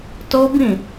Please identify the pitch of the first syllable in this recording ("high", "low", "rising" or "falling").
high